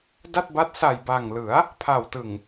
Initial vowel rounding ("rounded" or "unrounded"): unrounded